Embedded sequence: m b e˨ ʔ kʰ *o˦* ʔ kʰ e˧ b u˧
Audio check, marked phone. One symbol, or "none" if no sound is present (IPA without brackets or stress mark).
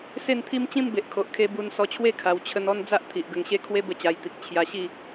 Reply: o˨